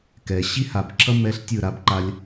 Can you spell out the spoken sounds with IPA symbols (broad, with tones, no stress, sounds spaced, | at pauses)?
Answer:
k ɛ˨ ɕ i˦ h a˨ b ǁʰ ʌ˦ m ɛ˧ ɬ tʲ ɯ˦˨ ɾ a˧ b ǃ a˧ lʲ